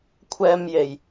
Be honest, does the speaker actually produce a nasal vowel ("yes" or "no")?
no